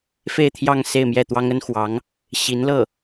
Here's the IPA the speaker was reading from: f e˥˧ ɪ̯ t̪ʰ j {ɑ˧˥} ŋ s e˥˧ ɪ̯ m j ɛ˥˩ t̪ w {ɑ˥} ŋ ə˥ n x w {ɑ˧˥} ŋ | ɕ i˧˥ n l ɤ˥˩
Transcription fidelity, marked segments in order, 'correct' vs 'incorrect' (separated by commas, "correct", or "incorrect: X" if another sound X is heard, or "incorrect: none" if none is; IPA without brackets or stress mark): incorrect: ɑ˥˧, correct, correct